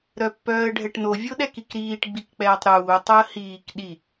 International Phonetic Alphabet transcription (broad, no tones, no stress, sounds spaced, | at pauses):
ɾ œ pː œː ə̯ ɖʱ ɛ ʈ n o vʲ o ɗ ɛ k i k ɾ iː ʈ ɡ͡b i k k͡p ɛː tˤ ɾ uː tˤ o ə̯ h iː k ɗ i